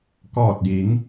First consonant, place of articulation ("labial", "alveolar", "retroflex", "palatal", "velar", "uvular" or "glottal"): velar